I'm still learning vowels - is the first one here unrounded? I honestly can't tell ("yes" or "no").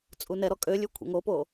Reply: no